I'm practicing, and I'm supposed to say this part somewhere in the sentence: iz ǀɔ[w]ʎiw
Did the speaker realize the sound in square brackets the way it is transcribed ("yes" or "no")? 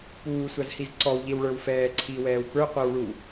yes